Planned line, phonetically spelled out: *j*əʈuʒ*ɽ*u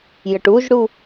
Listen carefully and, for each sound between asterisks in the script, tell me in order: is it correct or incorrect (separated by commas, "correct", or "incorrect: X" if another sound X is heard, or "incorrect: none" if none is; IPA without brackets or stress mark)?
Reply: correct, correct